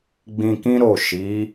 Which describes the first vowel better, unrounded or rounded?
unrounded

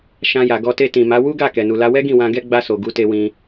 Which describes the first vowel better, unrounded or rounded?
unrounded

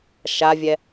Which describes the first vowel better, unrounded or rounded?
unrounded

